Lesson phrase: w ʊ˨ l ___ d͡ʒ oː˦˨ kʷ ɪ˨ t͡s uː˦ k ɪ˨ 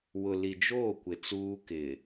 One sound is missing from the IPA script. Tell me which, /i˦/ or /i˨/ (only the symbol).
i˨